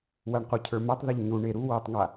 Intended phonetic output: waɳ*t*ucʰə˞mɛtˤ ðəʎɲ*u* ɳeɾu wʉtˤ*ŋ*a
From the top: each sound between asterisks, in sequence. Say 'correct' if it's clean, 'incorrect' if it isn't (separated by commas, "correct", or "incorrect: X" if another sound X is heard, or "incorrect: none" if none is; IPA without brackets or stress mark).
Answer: incorrect: q, correct, correct